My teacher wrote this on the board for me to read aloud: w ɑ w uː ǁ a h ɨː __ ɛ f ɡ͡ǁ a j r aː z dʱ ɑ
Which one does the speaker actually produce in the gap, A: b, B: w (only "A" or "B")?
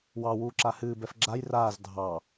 A